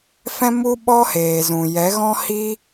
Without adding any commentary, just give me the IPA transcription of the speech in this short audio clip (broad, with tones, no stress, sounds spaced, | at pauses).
f ɛ̃˦ m u˦ ɓ ɔ˦ h eː˨ z ũ˨ j ɛ˨˦ ɣ ɔ̃˦ h i˦